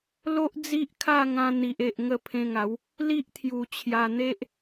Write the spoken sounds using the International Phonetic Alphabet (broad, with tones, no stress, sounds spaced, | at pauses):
l o˦ ʔ d͡z i˦ ʔ kʰ a˥˧ ŋ ã˧ n̪ i˨ ʔ e˨ ʔ ŋ ə˧ pʰ ẽ˧ ŋ a˨˦ w | l i˦ ʔ t̪ʰ j u˨˩ t͡ɕʰ j a˧ n̪ e˦ ʔ